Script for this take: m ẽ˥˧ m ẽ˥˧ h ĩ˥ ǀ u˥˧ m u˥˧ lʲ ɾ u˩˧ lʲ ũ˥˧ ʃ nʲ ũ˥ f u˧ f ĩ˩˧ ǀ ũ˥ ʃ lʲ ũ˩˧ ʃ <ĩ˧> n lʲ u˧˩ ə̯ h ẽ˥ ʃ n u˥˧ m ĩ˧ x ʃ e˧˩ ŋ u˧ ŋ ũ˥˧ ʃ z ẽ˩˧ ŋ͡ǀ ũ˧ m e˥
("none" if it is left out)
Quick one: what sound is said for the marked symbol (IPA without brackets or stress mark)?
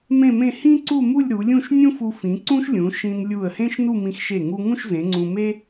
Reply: ĩ˧